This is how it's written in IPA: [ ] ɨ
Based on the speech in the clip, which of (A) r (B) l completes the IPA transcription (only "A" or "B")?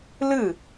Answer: B